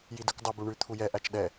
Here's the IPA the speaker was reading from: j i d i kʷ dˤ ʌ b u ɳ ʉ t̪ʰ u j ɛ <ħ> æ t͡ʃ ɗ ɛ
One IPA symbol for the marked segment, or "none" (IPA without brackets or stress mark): ʔ